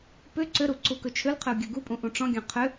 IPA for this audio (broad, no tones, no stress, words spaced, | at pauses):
pʏ ǀʏɾu ǀukɵt͡ʃʰʏlqʰʏu̯ ɡʲuɡupʼũ ʔũʈ͡ʂɔ̃ɡʲɔ̃ qʰʏ